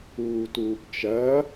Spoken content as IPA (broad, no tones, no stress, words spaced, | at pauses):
uːtuːpt͡ʃɐ